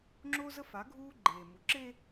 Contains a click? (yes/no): yes